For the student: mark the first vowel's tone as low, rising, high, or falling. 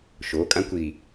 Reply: rising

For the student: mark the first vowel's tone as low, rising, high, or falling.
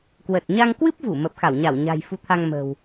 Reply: low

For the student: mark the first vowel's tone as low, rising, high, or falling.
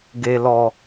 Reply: low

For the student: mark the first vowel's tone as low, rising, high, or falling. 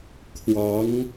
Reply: rising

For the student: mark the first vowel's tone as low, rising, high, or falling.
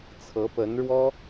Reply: rising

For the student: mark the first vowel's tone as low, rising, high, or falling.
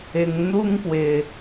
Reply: low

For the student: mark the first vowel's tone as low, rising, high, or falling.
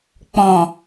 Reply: low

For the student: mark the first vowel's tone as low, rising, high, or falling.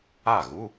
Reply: falling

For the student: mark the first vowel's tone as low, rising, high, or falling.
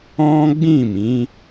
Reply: high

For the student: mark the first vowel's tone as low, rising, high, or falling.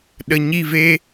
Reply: low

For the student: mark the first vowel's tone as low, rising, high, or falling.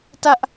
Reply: high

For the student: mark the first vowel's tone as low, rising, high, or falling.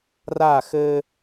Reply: falling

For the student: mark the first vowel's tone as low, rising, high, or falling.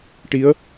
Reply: rising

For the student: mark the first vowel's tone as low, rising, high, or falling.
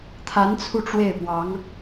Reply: rising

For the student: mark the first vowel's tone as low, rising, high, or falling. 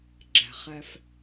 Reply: low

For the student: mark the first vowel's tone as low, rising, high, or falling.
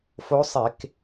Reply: rising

